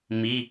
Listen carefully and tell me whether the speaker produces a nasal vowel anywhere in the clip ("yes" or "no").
no